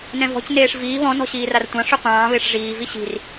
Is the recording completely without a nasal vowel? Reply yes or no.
no